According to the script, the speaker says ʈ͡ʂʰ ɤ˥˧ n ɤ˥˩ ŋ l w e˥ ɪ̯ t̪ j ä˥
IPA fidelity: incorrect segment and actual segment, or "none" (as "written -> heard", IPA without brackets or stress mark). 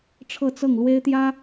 n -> t͡s